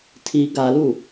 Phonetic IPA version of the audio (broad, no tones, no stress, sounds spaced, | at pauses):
tʰ i ɡ a l u